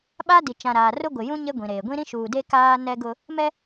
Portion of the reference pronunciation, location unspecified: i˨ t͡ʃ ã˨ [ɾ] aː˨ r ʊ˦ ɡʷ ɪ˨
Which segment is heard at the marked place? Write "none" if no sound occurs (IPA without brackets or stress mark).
ɾ